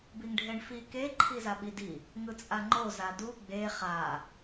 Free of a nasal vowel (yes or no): yes